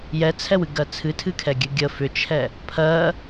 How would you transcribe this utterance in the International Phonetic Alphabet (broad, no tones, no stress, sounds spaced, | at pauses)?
j ɛ t͡sʰ ɛ w ɨ ɡ ɜ t͡sʰ ɨ tʰ ɨ kʰ ɛ ɡʲ ɨ ɡʲ ə f ʏ t͡ʃʰ ɛ | pʰ ɜ